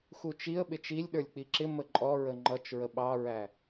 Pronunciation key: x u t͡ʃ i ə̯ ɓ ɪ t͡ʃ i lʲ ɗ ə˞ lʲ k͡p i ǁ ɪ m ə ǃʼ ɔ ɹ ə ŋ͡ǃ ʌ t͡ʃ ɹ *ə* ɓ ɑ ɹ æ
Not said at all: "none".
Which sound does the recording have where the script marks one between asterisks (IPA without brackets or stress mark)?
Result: ə